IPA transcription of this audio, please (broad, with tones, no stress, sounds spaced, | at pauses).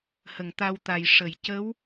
h ə˨˩˨ ŋ t̪ a˧ w t̪ a˨˩ j ʂ ə˨˩˨ j c ə˧˥ w